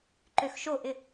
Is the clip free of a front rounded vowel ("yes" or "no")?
no